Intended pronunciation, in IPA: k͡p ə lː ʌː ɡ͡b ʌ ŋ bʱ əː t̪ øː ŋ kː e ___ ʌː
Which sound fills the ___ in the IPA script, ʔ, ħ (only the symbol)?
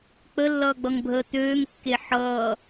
ħ